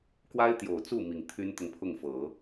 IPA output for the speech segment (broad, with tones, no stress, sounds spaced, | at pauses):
k w a˥ ɪ̯ t̪ j o˨˩ ʊ̯ t͡s u˥˩ m i˨˩ ŋ t̪ʰ y˥ n t̪ ʊ˨ ŋ pʰ ʊ˥˩ ŋ f ɤ˨˩˦